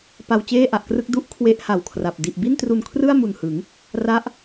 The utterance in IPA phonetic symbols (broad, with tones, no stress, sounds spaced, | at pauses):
p a˧ w t͡ɕ eː˥˩ ʔ a˨˩ ʔ k r ɯ˥˩ k̚ d u˦˥ ʔ kʰ w e˦˥ ʔ h a˨˩ w kʰ r a˨˩ p̚ d i˨˩ ʔ b i˥˩ n t r u˧ n kʰ r ɯ˥˩ a̯ m u˨˩ n h ɯ˩˦ ŋ | r a˦˥ ʔ